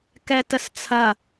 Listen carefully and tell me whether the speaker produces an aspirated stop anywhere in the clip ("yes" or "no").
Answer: yes